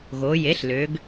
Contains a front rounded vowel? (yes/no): yes